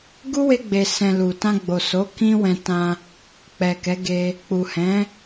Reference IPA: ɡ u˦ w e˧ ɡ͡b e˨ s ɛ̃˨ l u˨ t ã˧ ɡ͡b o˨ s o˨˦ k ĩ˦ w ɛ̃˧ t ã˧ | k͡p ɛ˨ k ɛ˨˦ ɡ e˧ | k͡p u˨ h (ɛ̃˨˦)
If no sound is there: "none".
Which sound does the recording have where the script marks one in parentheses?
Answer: ɛ̃˨˦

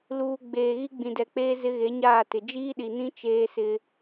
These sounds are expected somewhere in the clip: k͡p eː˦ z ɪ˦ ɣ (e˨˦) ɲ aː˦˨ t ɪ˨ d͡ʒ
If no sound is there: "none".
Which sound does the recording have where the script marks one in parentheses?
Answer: e˨˦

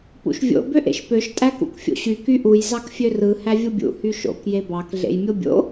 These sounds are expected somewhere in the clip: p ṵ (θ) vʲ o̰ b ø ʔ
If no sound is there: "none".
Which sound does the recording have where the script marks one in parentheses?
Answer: ʃ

